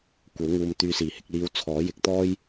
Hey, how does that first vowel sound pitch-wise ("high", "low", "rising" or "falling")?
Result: rising